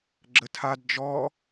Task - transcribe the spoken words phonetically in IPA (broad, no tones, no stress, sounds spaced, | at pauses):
ɡ͡ǁ ə tʰ a d d͡ʒ ɔ